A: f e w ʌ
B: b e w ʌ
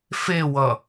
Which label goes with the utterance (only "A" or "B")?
A